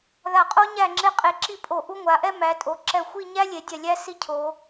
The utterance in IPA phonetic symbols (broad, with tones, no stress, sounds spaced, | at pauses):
ð a˧˩ qʼ o˥ ɲ æ˥˧ ŋ͡ǁ e˥ qʼ e˧ ǁ i˥˧ pʼ o˧˩ ʔ u˥ ŋʷ a˩˧ ʔ ɛ˥ m æ˩˧ tʼ o˩˧ ǁ ɛ˧˩ xʷ i˥˧ ɲ æ˥ lʲ e˩˧ dʲ ɛ˧˩ lʲ æ˥ s i˥ cʰ o˩˧